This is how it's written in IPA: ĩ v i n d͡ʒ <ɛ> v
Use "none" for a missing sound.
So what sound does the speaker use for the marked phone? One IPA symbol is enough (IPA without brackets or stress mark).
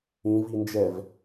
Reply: ɛ